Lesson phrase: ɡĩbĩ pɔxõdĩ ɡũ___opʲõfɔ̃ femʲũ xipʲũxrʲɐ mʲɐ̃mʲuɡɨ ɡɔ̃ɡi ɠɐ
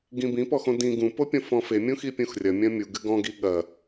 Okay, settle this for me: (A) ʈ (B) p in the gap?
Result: B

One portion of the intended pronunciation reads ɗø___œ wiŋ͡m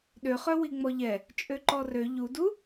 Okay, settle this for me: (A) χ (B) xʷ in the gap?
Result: A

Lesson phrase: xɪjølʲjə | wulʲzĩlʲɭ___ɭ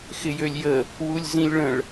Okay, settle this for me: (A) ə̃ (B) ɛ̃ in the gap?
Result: A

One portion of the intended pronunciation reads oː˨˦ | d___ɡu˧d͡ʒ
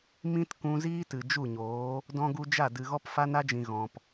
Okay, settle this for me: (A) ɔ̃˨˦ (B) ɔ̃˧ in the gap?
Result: B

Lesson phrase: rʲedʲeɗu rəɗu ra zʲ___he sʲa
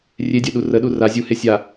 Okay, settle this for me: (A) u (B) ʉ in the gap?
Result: A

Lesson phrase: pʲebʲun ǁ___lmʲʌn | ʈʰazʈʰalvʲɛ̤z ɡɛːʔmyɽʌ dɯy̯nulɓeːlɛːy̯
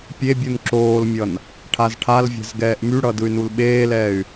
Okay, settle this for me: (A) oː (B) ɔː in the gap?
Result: A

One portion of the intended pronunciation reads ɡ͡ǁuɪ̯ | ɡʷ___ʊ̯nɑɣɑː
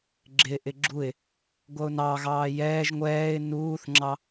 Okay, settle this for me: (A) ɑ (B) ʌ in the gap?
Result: B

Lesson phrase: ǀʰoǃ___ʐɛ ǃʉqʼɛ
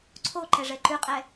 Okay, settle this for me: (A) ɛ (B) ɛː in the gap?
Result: A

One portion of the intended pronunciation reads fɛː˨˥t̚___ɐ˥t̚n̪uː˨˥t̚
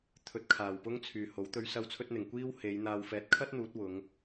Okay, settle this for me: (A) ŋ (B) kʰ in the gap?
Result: B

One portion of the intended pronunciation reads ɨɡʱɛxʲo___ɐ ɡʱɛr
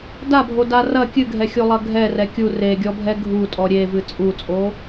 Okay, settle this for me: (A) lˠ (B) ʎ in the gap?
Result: A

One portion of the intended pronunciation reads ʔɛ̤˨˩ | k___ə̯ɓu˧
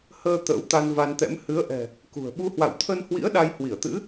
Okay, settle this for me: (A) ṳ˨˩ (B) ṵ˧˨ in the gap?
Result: A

